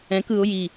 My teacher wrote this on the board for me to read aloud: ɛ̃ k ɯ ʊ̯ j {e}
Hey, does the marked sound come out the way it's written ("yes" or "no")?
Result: no